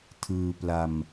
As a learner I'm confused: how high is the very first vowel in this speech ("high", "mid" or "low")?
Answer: high